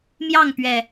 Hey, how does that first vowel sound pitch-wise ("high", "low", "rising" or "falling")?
falling